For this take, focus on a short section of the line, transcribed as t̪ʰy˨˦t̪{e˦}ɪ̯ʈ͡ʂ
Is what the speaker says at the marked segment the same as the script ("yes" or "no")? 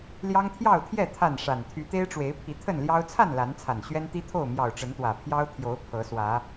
yes